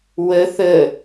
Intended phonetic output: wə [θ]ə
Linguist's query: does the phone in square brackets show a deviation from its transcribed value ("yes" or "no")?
no